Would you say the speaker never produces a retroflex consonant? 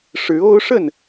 no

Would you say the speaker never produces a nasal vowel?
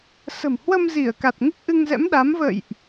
yes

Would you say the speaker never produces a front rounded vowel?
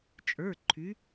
no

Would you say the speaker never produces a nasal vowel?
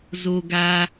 yes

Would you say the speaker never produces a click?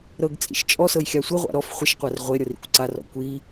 no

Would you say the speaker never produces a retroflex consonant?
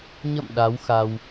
yes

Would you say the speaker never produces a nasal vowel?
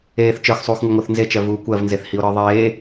yes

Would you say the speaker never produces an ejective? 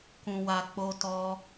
yes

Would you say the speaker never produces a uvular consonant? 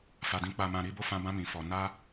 yes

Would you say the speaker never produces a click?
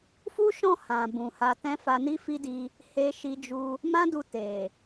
yes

